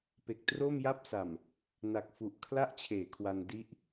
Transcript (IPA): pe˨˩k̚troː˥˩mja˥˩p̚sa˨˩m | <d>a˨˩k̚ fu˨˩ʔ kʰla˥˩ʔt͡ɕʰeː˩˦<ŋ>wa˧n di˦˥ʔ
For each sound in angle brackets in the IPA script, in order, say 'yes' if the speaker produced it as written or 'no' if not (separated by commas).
no, no